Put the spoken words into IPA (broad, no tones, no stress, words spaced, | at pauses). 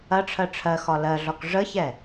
ɐʈ͡ʂʰɜ ʈ͡ʂʰɜ xɒlɜɮɒk ʐəçɛ